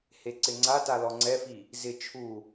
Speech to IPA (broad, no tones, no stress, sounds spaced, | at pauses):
h e ǀ ɪ ŋ͡ǀ a t a l ɔ ŋ͡ǀ ɛ f i | z ɪ t͡ʃʰ u